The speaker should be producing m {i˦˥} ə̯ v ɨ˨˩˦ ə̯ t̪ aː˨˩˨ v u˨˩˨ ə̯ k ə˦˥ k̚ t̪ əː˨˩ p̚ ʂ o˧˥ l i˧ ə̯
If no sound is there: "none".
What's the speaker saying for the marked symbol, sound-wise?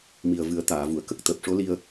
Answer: i˨˩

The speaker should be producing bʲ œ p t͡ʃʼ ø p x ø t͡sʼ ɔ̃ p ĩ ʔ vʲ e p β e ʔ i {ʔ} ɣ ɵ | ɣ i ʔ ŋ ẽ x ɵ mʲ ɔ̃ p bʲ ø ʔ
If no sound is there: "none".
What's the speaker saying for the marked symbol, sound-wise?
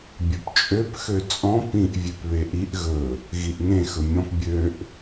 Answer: ʔ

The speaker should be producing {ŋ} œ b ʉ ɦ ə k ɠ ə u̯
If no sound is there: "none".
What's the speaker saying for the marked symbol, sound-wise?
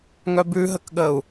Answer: ŋ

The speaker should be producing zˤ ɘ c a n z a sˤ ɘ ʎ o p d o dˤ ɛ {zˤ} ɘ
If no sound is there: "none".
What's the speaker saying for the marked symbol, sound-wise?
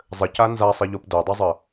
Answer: zˤ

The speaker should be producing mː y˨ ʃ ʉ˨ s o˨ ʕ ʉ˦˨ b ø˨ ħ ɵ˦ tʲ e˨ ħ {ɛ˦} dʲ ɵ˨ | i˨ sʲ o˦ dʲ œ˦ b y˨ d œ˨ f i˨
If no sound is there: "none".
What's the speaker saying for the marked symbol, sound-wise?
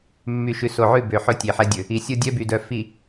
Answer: ɛ˦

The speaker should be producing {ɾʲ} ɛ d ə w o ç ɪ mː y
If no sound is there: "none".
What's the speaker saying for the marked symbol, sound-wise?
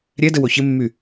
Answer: ɾʲ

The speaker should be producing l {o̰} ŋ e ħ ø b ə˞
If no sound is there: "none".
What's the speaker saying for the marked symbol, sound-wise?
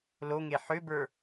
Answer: o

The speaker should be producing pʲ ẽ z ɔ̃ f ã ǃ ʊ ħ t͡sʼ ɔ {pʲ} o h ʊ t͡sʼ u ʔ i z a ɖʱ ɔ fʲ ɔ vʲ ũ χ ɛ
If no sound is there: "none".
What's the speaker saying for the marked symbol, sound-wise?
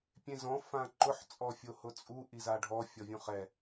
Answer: fʲ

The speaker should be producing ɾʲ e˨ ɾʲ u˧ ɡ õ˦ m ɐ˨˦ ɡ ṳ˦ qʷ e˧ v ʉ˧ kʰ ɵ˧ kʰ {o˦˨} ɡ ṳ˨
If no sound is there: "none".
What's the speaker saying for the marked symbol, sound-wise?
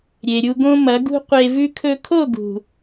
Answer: o˦˨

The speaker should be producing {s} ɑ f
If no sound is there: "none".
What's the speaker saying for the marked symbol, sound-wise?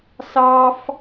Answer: s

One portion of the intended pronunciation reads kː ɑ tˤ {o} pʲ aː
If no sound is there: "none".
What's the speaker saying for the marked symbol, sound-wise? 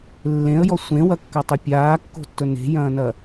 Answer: o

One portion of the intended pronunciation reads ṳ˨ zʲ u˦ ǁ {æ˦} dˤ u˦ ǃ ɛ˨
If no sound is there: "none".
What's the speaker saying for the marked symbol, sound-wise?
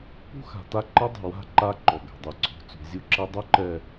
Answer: ɛ˦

